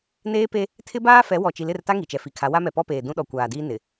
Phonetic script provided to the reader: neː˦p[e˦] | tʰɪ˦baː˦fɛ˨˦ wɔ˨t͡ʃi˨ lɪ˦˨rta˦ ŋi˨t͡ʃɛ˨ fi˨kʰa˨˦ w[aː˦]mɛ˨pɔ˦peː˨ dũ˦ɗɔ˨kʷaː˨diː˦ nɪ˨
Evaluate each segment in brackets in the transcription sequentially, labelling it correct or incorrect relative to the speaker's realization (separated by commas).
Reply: correct, incorrect